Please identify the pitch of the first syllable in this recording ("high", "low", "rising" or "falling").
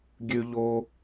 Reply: high